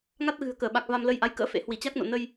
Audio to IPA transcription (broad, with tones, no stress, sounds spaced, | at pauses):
ŋ a˦˥ t̚ ɣ ɨ̤˨˩ ə̯ k əː˧˩ ɓ a˨˩ k̚ v a˧ m l ə˧ j ʔ a˨˦ j k ə̰ː˧˥ f ḛ˧˥ h w i˧˩ t͡ɕ a˦˥ k̚ n o̰˧˨ n ə˧ j